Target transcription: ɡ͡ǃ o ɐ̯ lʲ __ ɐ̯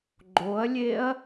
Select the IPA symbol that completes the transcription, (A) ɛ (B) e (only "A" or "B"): B